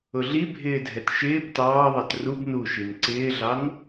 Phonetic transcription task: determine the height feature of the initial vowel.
high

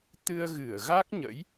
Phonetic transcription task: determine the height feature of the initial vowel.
high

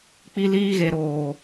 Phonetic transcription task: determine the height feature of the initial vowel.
high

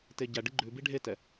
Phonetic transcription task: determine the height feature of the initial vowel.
mid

